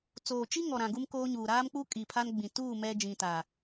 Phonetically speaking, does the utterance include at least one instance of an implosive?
no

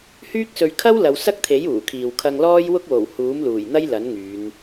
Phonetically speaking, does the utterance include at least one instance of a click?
no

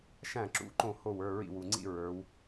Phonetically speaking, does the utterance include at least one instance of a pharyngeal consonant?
no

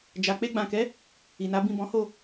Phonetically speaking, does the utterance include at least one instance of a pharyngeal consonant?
no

